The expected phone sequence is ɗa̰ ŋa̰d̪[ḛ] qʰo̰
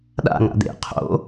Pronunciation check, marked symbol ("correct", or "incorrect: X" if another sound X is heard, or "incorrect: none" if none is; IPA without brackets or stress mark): correct